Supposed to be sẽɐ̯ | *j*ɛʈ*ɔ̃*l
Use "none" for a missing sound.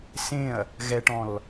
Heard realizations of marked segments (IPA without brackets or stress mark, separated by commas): ɣ, ɔ̃